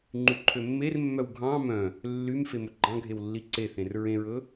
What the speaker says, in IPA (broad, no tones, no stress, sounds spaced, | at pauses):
ŋ͡ǃ y ǃʰ ø mː e r mː œ w ɡʱ ɑ̃ m œ̃ | lː y m f e m ɵ ɡ͡ǃ ɑ̃ ɡʱ e w lː i ǀ e θ ẽ r ɹ ẽ ɹ ɵ